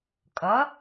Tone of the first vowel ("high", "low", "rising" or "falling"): rising